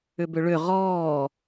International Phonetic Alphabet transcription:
ʏ b ʏ ɭ ʏ ʁ ɔː

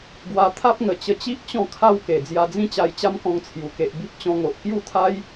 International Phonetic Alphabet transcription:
ɡ w a˧ t̪ʰ a˦ p̚ ŋ ə˨˩ t͡ɕ ə˧ t͡ɕ i˦ ʔ t͡ɕ ɔ̃˥˧ kʰ a˥˧ w k e˨˩ d͡z j a˧ d͡z ĩ˥˧ t͡ɕ a˧ j t͡ɕ a˦ m k ɔ̃˧ ŋ t͡sʰ j u˨˩ k e˨ ʔ b i˦ p̚ t͡ɕ ɔ̃˧ ŋ o˨ ʔ k j u˥˧ t̪ʰ a˦ j

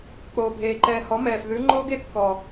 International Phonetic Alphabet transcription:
k͡p oː˨ bʱ eː˨ ǃ ɛː˧ h ɔ˨˦ m ɛː˨ f ð ʉ˨˦ ŋ͡ǃ oː˦ ɡ e˧ kː ɔ˨

